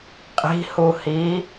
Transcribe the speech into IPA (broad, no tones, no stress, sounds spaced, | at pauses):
qʼ i̤ h u h i